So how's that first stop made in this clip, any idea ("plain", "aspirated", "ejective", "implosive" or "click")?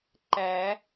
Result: click